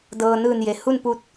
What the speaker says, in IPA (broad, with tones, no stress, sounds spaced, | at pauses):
d ɤː˧ n ɯː˧˩ n j e˩ h u˥˨ n p u˧˥ t̚